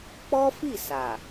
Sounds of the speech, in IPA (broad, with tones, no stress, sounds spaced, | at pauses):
k͡p ɔ˦ f i˦˨ s a˨